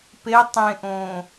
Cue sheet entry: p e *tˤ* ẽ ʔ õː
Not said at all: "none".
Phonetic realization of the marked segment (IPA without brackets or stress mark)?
tˤ